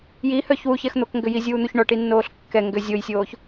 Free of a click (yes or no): yes